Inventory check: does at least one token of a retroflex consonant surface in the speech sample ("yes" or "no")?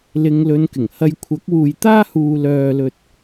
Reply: no